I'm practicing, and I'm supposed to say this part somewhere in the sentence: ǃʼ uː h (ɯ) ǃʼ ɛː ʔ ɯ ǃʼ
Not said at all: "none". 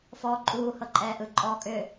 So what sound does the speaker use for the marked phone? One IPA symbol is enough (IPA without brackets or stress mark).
ɤ